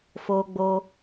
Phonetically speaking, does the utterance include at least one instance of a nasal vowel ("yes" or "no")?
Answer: no